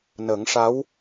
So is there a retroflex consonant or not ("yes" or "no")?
yes